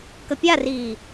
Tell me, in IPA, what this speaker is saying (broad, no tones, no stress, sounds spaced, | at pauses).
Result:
k ə pʲ a r iː